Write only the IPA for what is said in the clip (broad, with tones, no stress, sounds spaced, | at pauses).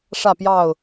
ʂ ä˥˨ p j ɑ˥˨ ʊ̯